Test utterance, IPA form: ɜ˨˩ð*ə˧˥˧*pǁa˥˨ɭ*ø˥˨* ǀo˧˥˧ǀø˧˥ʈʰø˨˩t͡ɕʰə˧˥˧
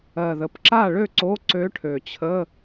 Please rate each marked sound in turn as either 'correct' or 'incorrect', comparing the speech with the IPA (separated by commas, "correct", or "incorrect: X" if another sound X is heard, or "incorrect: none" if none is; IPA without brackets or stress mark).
incorrect: ə˩˥, correct